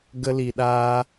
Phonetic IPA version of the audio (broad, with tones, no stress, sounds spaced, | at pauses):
ɡ ə˧ l i˨ ɗ aː˧